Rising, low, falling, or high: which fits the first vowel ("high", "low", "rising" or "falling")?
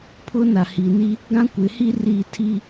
high